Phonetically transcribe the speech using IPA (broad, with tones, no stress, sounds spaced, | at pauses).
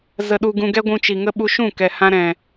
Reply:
z ə˧ ɗ u˧ ɡ ũ˧ ɡ ɛ˦ ɡʷ ũ˧ t͡ʃ i˨ ŋ ə˦ ɓ u˧ ʃ ũ˦˨ k ɛ˨ h ã˧ ɾ ɛ̃˨